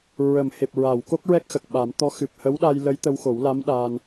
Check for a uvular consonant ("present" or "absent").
absent